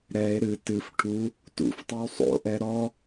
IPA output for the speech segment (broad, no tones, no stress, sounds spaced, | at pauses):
ɾ ɛ e̯ ɾ ɨ t ɨ f ʈʰ u | t ṵ f tˤ ɛ w sˤ o̰ ʔ ɛ ɾ ɔ